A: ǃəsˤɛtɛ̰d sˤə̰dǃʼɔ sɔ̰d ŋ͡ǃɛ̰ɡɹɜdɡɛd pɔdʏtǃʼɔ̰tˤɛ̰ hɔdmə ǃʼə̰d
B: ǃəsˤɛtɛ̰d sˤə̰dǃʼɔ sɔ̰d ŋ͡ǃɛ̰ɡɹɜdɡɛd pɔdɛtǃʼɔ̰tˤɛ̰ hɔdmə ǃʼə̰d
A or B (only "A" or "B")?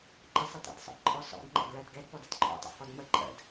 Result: B